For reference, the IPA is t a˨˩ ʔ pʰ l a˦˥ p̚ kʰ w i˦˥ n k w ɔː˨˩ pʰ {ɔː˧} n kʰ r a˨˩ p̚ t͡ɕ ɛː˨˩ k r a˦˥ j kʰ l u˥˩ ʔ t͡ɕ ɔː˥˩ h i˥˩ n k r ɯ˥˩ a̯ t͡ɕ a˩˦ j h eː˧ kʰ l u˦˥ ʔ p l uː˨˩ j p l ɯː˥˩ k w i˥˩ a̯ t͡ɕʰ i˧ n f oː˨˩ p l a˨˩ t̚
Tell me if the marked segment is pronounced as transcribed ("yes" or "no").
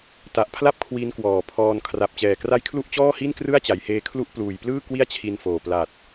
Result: yes